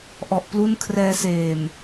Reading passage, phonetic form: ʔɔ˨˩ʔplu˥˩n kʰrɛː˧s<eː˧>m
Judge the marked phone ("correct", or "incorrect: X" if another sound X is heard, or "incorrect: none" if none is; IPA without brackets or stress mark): incorrect: eː˨˩